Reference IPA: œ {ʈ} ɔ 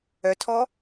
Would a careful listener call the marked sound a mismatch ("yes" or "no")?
yes